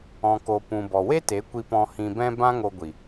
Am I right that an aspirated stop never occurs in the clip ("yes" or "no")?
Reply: yes